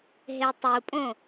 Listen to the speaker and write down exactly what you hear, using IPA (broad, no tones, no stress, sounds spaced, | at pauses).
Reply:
ɦ e tˤ u pʼ õ